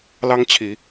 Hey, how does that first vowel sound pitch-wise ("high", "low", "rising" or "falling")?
high